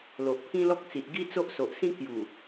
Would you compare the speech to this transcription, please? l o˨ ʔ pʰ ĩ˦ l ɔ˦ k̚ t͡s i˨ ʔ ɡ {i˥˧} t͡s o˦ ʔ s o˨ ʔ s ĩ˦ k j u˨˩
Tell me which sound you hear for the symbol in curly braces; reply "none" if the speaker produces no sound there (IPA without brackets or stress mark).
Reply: i˦